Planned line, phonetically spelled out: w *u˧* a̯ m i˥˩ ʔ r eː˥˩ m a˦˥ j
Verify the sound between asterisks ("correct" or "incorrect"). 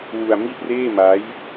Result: correct